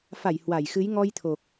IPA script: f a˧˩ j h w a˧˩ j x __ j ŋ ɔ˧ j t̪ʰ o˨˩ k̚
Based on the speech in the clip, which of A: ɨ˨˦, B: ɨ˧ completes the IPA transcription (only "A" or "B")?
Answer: A